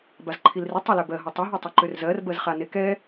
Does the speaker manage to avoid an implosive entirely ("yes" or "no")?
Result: yes